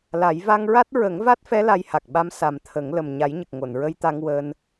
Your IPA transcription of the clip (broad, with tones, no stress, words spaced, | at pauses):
la˨˩˦j va˧ŋɹa˦˥t̚ ɹə˨˩˦ŋva˦˥t̚fɛ˧˥ la˧jha˨˩k̚ ɓa˧˥m sa˨˩mt̪ʰə˨˩˦ŋ lə˨˩m ɲa˨˩˦jɲə˨˩k̚ ŋo˨˩˨nɹə˧jt̪a˧ŋ wəː˧n